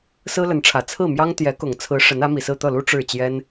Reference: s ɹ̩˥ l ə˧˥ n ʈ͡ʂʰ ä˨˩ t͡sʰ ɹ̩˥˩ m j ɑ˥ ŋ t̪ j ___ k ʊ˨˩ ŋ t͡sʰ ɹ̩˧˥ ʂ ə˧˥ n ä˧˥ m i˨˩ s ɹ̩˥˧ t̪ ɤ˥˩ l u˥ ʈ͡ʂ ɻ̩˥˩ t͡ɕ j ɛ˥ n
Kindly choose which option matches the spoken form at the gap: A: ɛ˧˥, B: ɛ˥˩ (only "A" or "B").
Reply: A